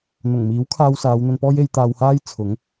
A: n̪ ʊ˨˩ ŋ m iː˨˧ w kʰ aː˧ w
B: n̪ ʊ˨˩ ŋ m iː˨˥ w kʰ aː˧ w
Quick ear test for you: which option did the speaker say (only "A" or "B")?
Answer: B